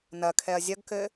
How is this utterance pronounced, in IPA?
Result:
nɐkʰɛɐ̯ zʲɐɡkɘ

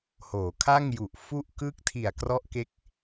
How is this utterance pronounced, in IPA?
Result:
hoː˩˦kʰa˥˩ŋju˨˩ʔ fu˥˩ʔkɯ˥˩k̚ tʰi˨˩a̯krɔ˦˥ʔke˦˥k̚

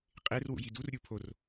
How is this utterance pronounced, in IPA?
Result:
qʼerwṵ jidurɾʲu pʰor

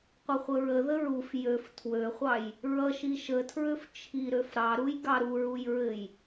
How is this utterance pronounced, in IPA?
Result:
qʷɘχʷəɹə ðəɹuf jøf tʰwøχʷɑj | ɹʌʃi ʃətʰɹøf t͡ʃʰiɾøf ɾɑɾuj ɡɑɾuɹuj ɹɘj

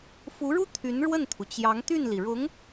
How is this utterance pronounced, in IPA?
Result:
fu˧˥ɻu˥ t̪ʰy˧˥n ɻwə˥˩nt̪ʰu˩ t͡ɕjɑ˧˥ŋt̪y˥˩nli˩ɻʊ˧˥ŋ

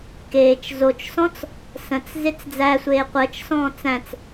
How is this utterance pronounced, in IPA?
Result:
keːt͡ʃ zot͡ʃsɔ̃t͡s | sə̃t͡s zet͡sd͡zæsʷeː qʷəːt͡ʃsɔ̃ː t͡sæ̃t͡s

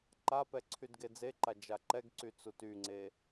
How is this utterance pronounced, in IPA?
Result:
ǃapɛ ǀʰydɡed͡zeǃa d͡ʒaǃɛɡǀy t͡sutyŋ͡ǀe

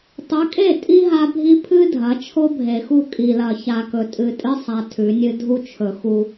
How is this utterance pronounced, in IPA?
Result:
tˤʉ˨˦kʼe˦˨tʼi˦ ɦa˦ bʱi˦pʰɨ˦dʱɐ˨˦ t͡ʃʰo˦bʱe˨xu˦˨ kʼi˨lɐ˨ ça˨kɵ˨ tʼɨ˨tʼɨ˦sˤa˨ tʰʉ˨˦nʲɨ˦ dʱu˦t͡ʃʰɵ˨xu˦

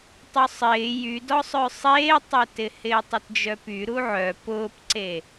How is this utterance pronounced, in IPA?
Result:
tˤʊsˤɪː jydɔsˤœ sˤeːtˤetɪ hɪːtˤɪtd͡ʒœpy ɾuʕœ pʊːpǀe

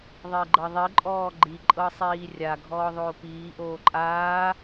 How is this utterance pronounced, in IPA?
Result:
ðˤeɡ͡ǃɤðˤi ǃʼɔːɡ͡ǃi ǃʼɤsˤiːrʲa ɡʱɔːðˤoːpiː ʔoːǃʼaː

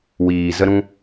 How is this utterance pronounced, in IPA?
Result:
wiː˨zə˧ɾũ˧

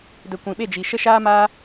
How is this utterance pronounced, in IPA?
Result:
də˨ kʷĩ˨ɓe˦˨d͡ʒi˨ ʃə˧ ʃaː˦maː˦

